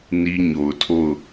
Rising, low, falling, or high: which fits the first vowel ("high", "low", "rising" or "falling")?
high